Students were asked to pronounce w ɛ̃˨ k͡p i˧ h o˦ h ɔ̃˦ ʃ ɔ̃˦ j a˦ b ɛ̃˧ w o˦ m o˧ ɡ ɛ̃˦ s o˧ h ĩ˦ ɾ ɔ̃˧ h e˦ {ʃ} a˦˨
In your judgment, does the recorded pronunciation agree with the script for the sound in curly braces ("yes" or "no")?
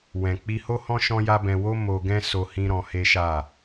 yes